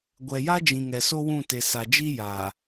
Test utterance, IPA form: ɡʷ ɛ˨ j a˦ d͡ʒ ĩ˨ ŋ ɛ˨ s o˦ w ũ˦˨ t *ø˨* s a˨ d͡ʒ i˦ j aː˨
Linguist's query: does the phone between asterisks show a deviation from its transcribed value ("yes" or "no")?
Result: yes